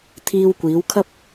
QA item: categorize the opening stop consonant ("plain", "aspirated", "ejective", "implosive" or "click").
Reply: aspirated